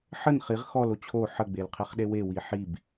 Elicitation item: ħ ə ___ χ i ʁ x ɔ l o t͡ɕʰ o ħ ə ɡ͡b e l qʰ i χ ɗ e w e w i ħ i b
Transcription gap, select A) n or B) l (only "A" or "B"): A